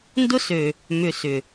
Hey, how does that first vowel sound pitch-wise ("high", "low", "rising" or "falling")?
high